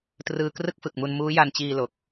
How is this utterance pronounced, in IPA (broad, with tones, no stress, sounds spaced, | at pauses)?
t r ɯː˧ k r ɯ˥˩ k̚ f ɯ˨˩ k̚ m u˧ n m uː˦˥ j a˧ n t͡ɕ iː˧ l o˨˩ k̚